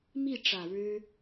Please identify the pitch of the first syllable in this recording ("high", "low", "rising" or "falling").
falling